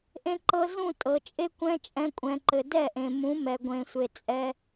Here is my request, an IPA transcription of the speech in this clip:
ʔ ẽ˧ ǃ ɤ˧ z ũ˦˨ tʼ ɤ˨ t͡ʃʼ e˦ kʷ ɛ̃˦ t͡ʃʼ ɛ̃˧ kʷʼ ɛ̃˨ ǃ ɘ˨ d ɛ˦˨ ʔ ẽ˨ m ũ˨˦ m ɛ˨ ɡʷ ẽ˨ sʷ e˨ t͡sʼ ɛ˧

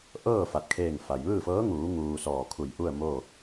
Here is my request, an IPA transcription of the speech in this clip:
ʔ ɤː˥˨ f a˧ t̚ kʰ eː˥˨ ŋ f a˩ j ʋ ɯː˥˨ f ɤː˧˥ ŋ uː˩˧ ŋ uː˧ s ɔː˧˩ kʰ u˧˩ j ʔ u˥˨ ə̯ m o˥˨

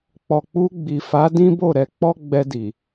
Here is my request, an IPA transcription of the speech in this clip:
k͡p ɔ˨ k͡p u˧ ɡ͡b i˨ f a˨˦ d ĩ˦ b o˦˨ ɾ ɛ˨˦ k͡p ɔ˦ ɡ͡b ɛ˧ d i˨

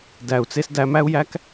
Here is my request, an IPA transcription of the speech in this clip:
d æ˨ u̯ t͡s e˧ s d æ˧ m æ˦ u̯ j æ˦ k

